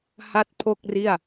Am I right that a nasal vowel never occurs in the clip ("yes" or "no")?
yes